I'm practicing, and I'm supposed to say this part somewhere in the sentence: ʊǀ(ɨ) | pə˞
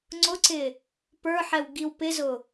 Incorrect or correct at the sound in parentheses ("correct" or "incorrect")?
incorrect